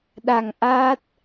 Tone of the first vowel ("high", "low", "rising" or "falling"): low